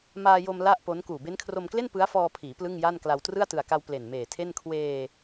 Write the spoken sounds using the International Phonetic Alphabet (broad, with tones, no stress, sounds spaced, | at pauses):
m aː˧ j o˧ m l a˥˩ ʔ p o˦˥ n k uː˨˩ b e˦˥ n kʰ r o˧ m k l e˥˩ n p ɯ˦˥ a̯ f ɔː˧ pʰ iː˩˦ p l ɯ˥˩ ŋ j a˥˩ n k l a˧ w t r ɯ˥˩ a̯ t ɯ˨˩ a̯ k a˧ w p l e˨˩ n m eː˨˩ tʰ e˥˩ n kʰ w eː˧